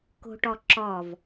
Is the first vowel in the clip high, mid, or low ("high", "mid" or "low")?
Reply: mid